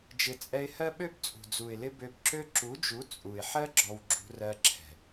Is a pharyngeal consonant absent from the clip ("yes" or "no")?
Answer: no